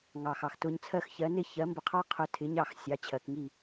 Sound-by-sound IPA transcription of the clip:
ŋ ɑ˩ x ɑ˩ x t ʊ˧ ɲ t͡sʰ ɜ˥˩ x ç ɜ˩˥ n ɪ˥ ç ɜ˩˥ m b ə˧ qʰ ɑ˥ qʰ ʊ˧ tʰ ɪ˩˥ ɲ ɑ˥˩ x sʲ ɑ˩˥ t͡ɕʰ ɜ˩ k ŋ i˥˩

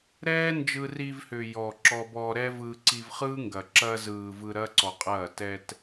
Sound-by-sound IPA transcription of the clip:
ɾ ɛː˦ n d͡ʒ ɯ˧ r i˧ v h ʏː˨ j ɔ˨ ǁ ɔ˧ b ɔː˧ ɾ ɛ˦ v ɯː˧ ǀ i˧ v χ ɯː˦ ŋ ɡ ɐ˨ ǁ ɐ˧ z ɯː˨ v ɯ˧ ɾ ɐ˦ ǀ ɔ˨ qʼ ɐː˦˨ t ɛ˧ t

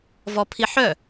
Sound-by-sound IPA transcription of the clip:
v ɔ pʰ i ħ œ

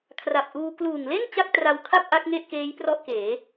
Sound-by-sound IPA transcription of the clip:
kʰ r a˨˩ p̚ ʔ uː˧ k l uː˨˩ ŋ l e˥˩ n t͡ɕ a˥˩ k̚ t r a˧ w kʰ a˥˩ p̚ ʔ a˦˥ k̚ ŋ e˥˩ ʔ k eː˦˥ j p r ɔ˥˩ ʔ k eː˩˦

